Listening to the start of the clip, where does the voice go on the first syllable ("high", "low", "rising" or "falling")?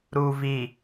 low